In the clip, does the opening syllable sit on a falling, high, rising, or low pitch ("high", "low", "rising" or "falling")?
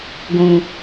high